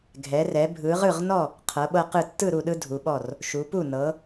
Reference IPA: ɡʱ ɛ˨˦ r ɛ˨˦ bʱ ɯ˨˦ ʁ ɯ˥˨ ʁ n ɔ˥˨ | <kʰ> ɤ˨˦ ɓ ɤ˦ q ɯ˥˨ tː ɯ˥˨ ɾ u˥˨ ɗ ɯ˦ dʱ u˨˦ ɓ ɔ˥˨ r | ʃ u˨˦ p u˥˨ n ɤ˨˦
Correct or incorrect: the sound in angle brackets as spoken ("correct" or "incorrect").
incorrect